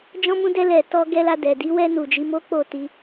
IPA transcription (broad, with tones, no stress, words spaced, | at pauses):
d͡ʒɔ̃˧mũ˧dɛ˧lɛ˨ tɔ˧ɡɛ˧la˧ dɛ˨di˨˦ wɛ˧nu˨ d͡ʒi˧mo˦k͡po˦˨ ti˧